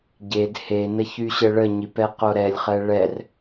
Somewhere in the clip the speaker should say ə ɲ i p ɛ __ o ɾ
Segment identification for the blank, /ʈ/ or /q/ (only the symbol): q